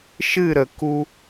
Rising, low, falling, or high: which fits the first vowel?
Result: falling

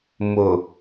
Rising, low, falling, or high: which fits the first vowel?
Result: low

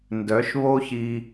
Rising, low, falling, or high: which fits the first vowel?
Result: rising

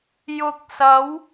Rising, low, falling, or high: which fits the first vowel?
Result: low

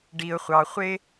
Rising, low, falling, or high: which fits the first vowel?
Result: low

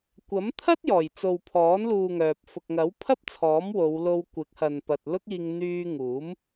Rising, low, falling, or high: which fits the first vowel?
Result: rising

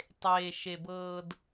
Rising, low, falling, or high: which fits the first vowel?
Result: low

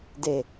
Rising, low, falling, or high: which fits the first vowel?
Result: low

